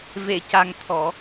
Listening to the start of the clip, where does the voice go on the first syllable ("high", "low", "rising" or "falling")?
low